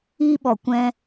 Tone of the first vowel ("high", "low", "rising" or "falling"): high